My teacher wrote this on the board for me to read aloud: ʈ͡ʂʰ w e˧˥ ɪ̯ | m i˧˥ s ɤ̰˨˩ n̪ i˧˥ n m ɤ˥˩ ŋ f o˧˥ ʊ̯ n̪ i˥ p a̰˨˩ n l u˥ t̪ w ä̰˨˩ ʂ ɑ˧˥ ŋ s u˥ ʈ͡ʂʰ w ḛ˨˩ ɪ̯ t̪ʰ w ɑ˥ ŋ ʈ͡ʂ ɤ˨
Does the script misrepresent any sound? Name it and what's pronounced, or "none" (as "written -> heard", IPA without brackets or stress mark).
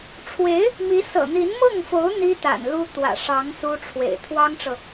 p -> t̪